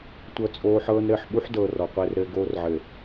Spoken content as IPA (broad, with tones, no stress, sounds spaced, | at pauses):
tʷ ɤ˦ t͡sʼ oː˦ ħ ɤː˦ n ɾ ɘː˨ ħ ɓ u˦ ħ d ɤː˨ r ɔ˨ qʷ ɘː˦ r ɾ ɘː˦ ɡ oː˦ r ʕ ɘ˨